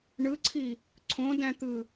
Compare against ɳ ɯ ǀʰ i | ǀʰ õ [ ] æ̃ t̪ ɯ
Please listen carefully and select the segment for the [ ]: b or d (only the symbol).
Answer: d